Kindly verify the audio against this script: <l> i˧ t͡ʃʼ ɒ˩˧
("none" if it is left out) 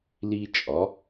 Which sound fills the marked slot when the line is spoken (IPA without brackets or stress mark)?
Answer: l